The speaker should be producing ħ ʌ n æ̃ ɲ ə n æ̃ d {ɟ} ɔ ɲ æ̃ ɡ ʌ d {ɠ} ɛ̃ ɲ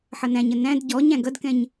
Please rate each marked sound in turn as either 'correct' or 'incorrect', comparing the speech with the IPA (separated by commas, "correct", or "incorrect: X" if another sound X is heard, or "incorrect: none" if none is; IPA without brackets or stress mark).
correct, incorrect: k